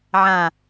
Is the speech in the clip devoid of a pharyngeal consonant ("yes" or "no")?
no